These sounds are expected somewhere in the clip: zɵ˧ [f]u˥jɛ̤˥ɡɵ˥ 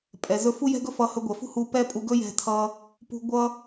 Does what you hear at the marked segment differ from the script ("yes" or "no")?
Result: no